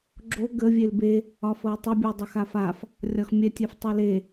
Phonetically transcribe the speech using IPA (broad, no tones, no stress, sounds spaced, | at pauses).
ɡ͡ǁ o ɡ ə vʲ e l b e | ɒ f ɤ ə̯ tˤ ɤ bʲ o dˤ ə x a f a f | rʲ ɒ x mʲ ɛ tʲ ɛ f tˤ ɛ l e